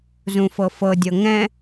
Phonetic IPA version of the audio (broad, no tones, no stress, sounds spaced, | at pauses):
z ũ f ɤ f ɤ dʲ ɤ ŋ ɛ̃